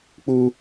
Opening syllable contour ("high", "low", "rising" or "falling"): high